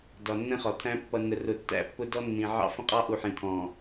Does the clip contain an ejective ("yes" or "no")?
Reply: yes